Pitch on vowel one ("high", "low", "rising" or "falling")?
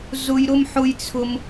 high